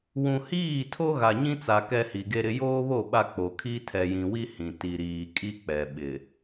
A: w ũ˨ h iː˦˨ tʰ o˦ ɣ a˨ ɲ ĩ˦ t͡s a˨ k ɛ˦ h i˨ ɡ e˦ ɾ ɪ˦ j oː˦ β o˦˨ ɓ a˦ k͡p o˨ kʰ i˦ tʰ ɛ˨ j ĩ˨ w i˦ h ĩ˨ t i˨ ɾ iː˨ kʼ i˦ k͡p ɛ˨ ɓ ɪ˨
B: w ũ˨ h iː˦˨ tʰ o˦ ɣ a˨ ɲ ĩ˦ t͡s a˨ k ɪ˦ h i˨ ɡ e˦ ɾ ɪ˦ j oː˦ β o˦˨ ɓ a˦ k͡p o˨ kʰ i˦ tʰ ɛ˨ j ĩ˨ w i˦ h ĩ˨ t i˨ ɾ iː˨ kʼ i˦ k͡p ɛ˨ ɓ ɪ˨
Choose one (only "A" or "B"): A